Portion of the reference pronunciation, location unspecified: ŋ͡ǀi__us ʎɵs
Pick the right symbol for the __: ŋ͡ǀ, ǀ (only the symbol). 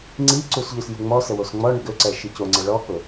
ǀ